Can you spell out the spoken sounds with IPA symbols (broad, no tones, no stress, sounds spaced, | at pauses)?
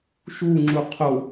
ʃ u ŋ͡ǁ u qʰ o